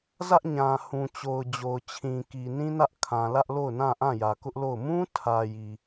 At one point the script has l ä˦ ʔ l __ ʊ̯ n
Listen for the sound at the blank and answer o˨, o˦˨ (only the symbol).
o˦˨